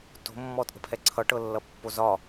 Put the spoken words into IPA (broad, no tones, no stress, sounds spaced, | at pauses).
t o̤ mː ɔ tʼ ə̤ pʰ ɛ ǀʰ ʌ ʈ ɤ lː ʌ pː o z ɒ